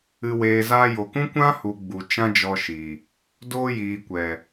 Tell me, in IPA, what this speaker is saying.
ɨ˨ w eː˨ z aː˧ j o˨ k ũ˦ kʷ ã˦ h u˨ ɡ͡b u˨ t͡ʃ ã˦ d͡ʒ ɔ˧ ʃ i˨ | d oː˧ j iː˨ kʷ ɛ˨

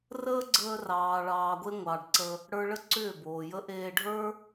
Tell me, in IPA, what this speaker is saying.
r əː˦ ɡ͡ǀ əː˧ r ɑː˨ ɭ ɑː˨ ɡʷ e˧ ŋʷ ɑ˨ ɖ ǀ ə˧ | ɽ ə˞˧ ɭ ə˦ ǀ ʏː˦˨ b oː˨ j ə˦ ʔ eː˧ ɖʱ ə˞˦

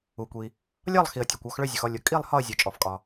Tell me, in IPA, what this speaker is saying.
u˩ kʷ i˩ | lʲ ɒ˦˨ lˠ x i˩ ə̯ tʲ ɒ˩ kʷ ɔ˦˨ x ɭ ø˦˨ zʲ ʊ˩ x ɔ˦˨ lʲ ʊ˩ kʼ i˦˨ lˠ h ɒ˦˨ ə̯ zʲ ø˩ t͡ʃʼ ɔ˩ f kʼ ɒ˩

